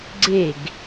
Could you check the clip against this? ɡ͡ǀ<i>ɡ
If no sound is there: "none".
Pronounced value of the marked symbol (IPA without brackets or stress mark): e